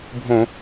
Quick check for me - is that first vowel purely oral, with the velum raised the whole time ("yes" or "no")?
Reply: no